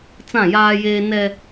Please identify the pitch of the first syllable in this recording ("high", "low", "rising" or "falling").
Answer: falling